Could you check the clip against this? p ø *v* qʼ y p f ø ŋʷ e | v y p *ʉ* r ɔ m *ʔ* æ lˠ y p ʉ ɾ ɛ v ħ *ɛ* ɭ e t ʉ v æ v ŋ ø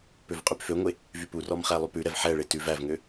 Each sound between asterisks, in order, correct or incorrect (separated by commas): correct, incorrect, incorrect, correct